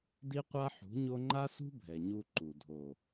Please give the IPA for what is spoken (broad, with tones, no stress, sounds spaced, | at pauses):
d i˦ qʷ a˦ ħ ṳ˨˦ ɲ o˦ ŋ͡ǃ a˦ s ṳ˦ bʱ ɛ˨ ɲ u˧ ǃ u˨ dʱ o˨